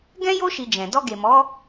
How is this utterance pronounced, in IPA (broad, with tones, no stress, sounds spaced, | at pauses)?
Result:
ɡ ɛ̃˦ j o˦ ʃ i˧ d͡ʒ ɛ̃˨ d ɔ˧ ɡ e˨ m ɔ˨˦